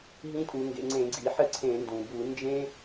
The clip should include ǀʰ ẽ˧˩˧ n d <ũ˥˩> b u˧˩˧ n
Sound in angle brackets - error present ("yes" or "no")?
yes